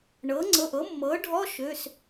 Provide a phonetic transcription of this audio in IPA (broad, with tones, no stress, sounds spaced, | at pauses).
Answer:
ɳ ɤ˩˥ ŋ͡ǀ ɤ˩˧˩ ʔ ɤ˩˥ mː ɤ˩˥ ɖʱ ɔ˧˥˧ ʃ ø˩˧˩ s